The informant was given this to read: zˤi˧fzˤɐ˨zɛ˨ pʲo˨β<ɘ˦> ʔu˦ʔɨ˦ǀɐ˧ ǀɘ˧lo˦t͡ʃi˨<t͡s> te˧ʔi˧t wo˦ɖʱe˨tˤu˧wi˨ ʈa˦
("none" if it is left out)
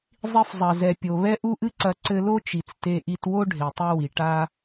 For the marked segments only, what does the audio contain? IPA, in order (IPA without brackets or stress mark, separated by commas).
ɛ˦, t͡s